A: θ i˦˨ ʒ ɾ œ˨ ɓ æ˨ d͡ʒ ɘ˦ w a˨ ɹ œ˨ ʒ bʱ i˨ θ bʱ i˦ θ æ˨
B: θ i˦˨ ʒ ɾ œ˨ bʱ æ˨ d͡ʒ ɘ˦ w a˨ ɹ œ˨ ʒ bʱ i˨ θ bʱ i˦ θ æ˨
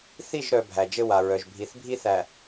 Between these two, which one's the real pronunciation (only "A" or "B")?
B